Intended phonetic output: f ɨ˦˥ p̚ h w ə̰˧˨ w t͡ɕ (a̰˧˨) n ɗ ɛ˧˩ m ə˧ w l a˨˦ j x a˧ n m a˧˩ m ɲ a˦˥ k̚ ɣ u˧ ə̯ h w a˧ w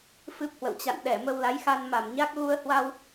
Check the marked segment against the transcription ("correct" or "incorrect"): correct